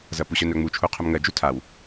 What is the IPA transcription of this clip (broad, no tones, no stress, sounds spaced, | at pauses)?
z ɐ p u ɕ œ n œ ŋ͡m u t͡ʃʰ u qʰ œ m ŋ ɜ d͡ʒ u tʰ a w